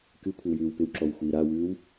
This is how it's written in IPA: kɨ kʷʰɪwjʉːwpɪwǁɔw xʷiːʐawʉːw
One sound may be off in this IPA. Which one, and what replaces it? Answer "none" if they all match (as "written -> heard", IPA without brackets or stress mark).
ʐ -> ɾ